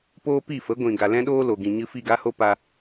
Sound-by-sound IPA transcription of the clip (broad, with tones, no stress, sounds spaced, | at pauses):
p oː˦ p i˦˨ f ə˨˦ ɡʷ ĩ˨ ɡ a˨ l ɛ̃˦ ɗ oː˦ l o˨ ɡ ĩ˨ ɲ ɨ˧ f i˦˨ ɡ a˦ h o˦ p a˧